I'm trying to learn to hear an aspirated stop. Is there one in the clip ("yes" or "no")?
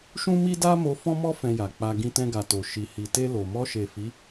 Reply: no